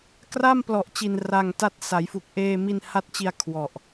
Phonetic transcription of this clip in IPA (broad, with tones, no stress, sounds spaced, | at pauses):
k r a˥˩ m p l ɔ˨˩ ʔ t͡ɕ i˨˩ n r a˧ ŋ t a˥˩ t̚ s a˩˦ j f u˨˩ k̚ ʔ eː˧ m i˧ n h a˦˥ t̚ t͡ɕ i˧ a̯ kʰ w ɔ˨˩ ʔ